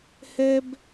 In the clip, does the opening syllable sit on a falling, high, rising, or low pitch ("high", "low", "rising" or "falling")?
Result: high